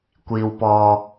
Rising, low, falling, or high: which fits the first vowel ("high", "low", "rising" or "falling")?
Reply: low